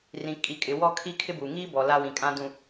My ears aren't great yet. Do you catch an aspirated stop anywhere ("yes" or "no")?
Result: yes